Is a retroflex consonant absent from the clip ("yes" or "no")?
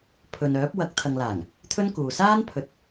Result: yes